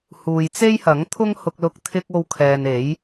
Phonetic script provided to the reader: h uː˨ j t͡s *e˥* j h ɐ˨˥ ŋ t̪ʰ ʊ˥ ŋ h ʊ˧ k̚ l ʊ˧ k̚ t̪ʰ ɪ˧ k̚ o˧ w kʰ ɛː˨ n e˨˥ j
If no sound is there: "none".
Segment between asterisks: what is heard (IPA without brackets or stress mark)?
e˥